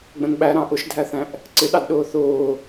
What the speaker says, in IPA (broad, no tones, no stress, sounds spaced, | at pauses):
ɡ͡b ə̃ n ɓ æ ɾ ɑ̃ ʔ ʊ ʃ dʱ æ θ æ̃ ʔ | ǀ ɪ ɗ ɑ d ɗ ʊː θ ʊː